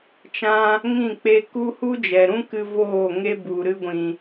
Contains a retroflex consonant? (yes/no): no